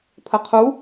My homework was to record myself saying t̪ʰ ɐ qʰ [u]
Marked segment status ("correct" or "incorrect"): correct